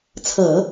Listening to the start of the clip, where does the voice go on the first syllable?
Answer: low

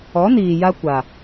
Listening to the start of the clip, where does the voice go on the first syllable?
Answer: rising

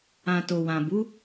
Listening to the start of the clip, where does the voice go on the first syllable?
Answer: low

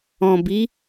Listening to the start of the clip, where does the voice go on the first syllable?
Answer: low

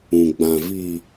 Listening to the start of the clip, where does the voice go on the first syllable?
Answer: low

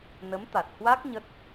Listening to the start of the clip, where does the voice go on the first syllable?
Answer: rising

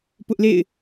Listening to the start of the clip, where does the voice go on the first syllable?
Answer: high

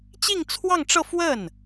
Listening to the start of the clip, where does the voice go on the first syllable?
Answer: falling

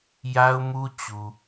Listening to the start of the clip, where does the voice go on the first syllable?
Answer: high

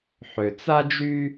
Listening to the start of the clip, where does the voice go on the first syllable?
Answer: low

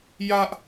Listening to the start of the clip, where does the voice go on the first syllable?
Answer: high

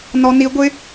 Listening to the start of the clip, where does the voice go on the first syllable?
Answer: high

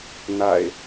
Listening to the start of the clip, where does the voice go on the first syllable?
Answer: low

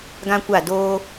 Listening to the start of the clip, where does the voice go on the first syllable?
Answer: high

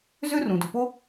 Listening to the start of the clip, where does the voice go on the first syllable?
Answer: high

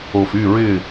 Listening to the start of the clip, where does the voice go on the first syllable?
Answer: low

